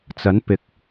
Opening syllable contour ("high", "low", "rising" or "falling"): rising